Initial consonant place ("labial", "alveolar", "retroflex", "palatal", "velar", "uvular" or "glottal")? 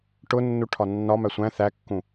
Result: retroflex